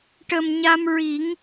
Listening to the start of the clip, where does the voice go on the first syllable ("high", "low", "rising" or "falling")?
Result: low